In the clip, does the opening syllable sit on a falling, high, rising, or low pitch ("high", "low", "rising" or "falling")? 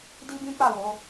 high